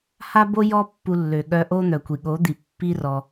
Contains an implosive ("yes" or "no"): yes